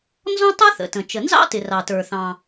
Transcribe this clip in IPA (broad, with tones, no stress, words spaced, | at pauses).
nzɔ̃˥tˤə˞˥ θə̰˩tə̃˩ t͡ʃə˩nzɑ̰˥tɪ˩ rɑ˩tə˞˩θɑ̃˩